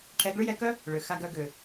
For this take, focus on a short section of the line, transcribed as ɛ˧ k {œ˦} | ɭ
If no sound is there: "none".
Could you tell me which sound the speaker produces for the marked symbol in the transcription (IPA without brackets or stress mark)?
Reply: œ˦